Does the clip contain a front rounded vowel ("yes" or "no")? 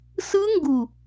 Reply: no